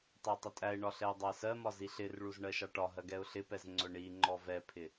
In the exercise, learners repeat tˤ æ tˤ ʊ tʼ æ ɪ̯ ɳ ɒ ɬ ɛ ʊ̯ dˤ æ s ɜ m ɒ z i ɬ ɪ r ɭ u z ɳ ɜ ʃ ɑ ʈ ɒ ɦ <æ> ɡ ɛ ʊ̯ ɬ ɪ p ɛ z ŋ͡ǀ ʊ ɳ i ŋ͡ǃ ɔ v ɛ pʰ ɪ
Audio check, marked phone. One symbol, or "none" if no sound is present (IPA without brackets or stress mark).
ɜ